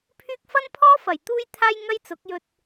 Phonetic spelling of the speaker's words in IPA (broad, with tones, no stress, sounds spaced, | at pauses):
pʰ yː˥ k̚ f ɐ˥ n pʰ ɔː˥ f ɐ˨˩ j t̪ uː˥ j t̪ʰ aː˥ j ŋ ɐ˥ j t͡s ʊ˨˥ k̚ j ɵ˧ t̚